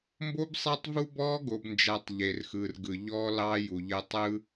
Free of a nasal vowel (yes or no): yes